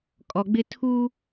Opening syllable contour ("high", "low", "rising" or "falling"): low